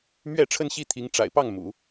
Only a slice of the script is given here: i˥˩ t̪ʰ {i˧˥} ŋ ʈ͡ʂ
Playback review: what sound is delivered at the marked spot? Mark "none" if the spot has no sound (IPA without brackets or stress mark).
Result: i˧˥